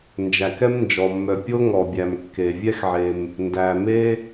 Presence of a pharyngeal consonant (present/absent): present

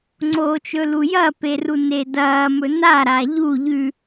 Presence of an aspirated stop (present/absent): absent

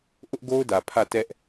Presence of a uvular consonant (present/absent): absent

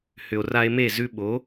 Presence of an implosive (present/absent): present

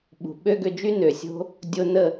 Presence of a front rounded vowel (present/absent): present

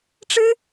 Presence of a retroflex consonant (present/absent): present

